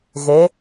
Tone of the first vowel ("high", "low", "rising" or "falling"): rising